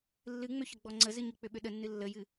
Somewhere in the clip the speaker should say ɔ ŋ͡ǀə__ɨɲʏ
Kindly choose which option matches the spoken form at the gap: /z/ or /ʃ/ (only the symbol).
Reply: z